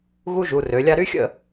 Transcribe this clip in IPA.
ɣ u˥ ʒ u˩˧ r ø˩˧ lʲ a˥ ɾ y˥ xʲ ə̰˥˧

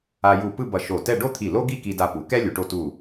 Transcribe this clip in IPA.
a˧ j u˧˩ p ɯ˥˧ b ʌ˧˩ ʃ o˧˩ t ɛ˥˧ ɖ o˥˧ t̪ʰ i˧˩ l o˥ ɡ i˥˧ k i˧ d a˧ p u˩˧ k ɛ˥ lʲ u˩˧ ʈ o˧ t u˧˩

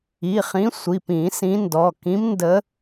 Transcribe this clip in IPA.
i˩˧˩ χ ĩ˨˦ sʷ i˩˧˩ p ĩ˨˩˦ s ĩ˨˦ n d ɔ˩˧˩ k ĩ˨˦ m n d ə˨˦

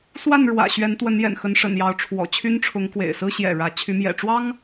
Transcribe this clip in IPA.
s w a˥˨ n ɻ w ä̰˨˩ ɕ ɥ ɛ˨˦ n t̪ w ə˨˦ n j ɛ̰˨˩ n x ə˨˦ n ʂ ə̰˨˩ n j ɑ˨˦ ʊ̯ ʈ͡ʂʰ w ɔ̰˨˩ t͡ɕʰ y˦ n ʈ͡ʂʰ ʊ˨˦ ŋ k w ḛ˨˩ ɪ̯ s ɹ̩˦ ɕ j ɛ̰˨˩ ɻ ä˨˦ t͡ɕʰ y˨˦ m j ɛ̰˨˩ ʈ͡ʂ w ɑ˦ ŋ

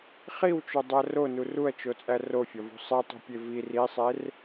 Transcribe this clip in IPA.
χ i w t͡ʃ o dˤ æ r o n u r u ɐ̯ t͡ʃ o t͡sʼ æ r o fʲ ɒ v ṳ sˤ i tˤ ṳ pʲ e v i r i sˤ e r

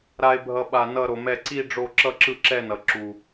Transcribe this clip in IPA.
ɾ a˧ e̯ bʱ ʌ˧ ɓ a˧ n ʌ˥˧ ɾ o˧ m ɛ˥˧ ǀ i˥˧ ɖ͡ʐ o˥˧ ǁ ʌ˥˧ ǁ ɯ˥˧ ǁ ɛ˥˧ n ʌ˧ ǁ u˧

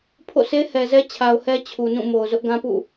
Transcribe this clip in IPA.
pʰ o̰˦˨ sʰ e˦ h ɛ˨ z ɛ˦ t͡ɕʰ a˨ ʊ̯ h ɛ˦ t͡ɕʰ u˨ n ũ˦˨ m o˨ ʊ̯ z ʊ˦ ʔ ɡ ã˦ p ṵ˦˨

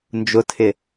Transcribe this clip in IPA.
n d͡ʒ ʊ tʰ ɪ

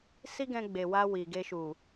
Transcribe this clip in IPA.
s i˦ ɡ ɛ̃˧ ɡ͡b e˨ w a˧ w i˨ ɡ e˧ ʃ u˨

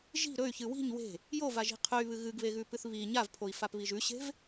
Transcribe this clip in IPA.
ʒ i̤ ɾ ɵ y̯ ç ɨ w i̤ ɲ w e̤ | j o v a ʒ i̤ qʰ ɵ y̯ β ɨ ɣ ɨ ɡ β e ɣ ʉ p ɨ θ β i ɲ a v pʰ o i̯ f a p β i ʒ ʉ ɕ e̤ v

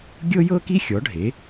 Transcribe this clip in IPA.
ɡʲ ɤ˥ j ɤ˥ k i˥ xʲ ɔ˩˥ ɖʱ e˩˥

